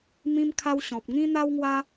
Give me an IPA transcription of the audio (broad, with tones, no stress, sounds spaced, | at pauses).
m ĩ˧ m kʰ a˧ w ɕ ɔ̃˨ p̚ ŋ ĩ˦ n̪ a˦ w ŋ w a˦